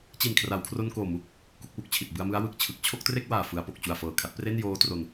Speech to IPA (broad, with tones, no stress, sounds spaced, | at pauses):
t͡ɕ i˨˩ n kʰ r a˩˦ w kʰ r o˧ n k oː˨˩ m u˨˩ k̚ | k u˥˩ k̚ w u˦˥ k̚ t͡ɕʰ i˨˩ t̚ b ɯ˧ a̯ m ɯ˦˥ a̯ w ɯ˨˩ k̚ t͡ɕʰ ɯ˨˩ k̚ t͡ɕʰ o˥˩ k̚ t r e˥˩ k̚ w aː˨˩ f ɯ˩˦ a̯ p o˨˩ k̚ t͡ɕ u˨˩ a̯ f ɤː˨˩ kʰ a˦˥ t̚ p r e˥˩ n j oː˦˥ t r o˧ n